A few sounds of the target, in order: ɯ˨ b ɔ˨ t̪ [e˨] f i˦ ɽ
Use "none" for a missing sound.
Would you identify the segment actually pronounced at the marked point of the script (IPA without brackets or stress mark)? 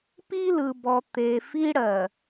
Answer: e˨